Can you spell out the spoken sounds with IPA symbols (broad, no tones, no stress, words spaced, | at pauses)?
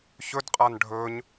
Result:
çɵdqʼan ɖʱɵɲ